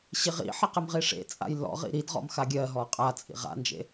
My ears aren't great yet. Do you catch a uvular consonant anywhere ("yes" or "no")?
yes